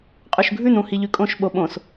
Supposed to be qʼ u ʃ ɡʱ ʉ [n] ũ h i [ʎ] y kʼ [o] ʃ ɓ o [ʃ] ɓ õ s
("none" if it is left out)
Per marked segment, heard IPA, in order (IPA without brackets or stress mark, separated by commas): n, ʎ, õ, none